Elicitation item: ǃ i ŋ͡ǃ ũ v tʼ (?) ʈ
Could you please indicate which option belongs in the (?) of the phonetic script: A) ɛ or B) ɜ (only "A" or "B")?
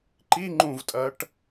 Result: B